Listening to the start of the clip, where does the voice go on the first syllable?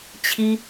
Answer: high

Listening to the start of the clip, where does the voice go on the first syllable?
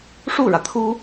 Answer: falling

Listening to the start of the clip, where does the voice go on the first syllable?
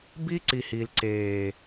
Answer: high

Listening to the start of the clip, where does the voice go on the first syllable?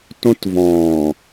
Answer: high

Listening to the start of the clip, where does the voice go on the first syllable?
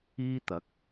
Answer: high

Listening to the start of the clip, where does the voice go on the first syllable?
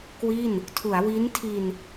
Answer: falling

